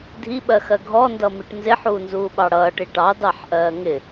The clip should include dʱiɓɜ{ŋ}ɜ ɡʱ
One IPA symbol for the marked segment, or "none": x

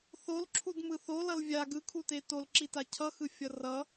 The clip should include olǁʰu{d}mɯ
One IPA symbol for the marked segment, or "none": d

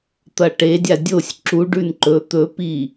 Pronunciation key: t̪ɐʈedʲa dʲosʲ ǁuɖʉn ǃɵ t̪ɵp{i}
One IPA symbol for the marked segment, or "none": i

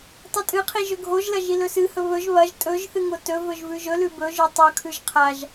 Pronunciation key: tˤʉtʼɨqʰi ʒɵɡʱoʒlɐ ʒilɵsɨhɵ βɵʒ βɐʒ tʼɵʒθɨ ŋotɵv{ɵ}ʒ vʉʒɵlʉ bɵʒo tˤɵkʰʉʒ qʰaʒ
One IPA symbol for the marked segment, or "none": ɵ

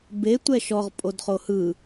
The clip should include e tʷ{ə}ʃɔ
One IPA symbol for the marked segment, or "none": ɛ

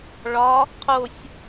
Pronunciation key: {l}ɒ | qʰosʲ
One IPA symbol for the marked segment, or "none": ɭ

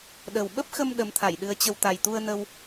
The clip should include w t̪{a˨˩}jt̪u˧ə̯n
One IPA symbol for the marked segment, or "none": a˨˩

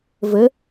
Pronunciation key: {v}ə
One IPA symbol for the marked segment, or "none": v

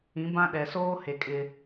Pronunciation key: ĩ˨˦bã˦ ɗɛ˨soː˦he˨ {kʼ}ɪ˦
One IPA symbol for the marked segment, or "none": kʼ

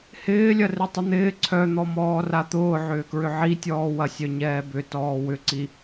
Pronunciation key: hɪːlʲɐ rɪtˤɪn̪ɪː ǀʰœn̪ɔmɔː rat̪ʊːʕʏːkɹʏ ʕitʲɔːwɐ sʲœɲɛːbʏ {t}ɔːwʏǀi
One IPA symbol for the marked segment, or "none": t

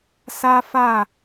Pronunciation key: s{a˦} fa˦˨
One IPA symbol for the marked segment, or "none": a˦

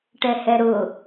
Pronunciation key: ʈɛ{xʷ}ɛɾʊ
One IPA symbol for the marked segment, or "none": h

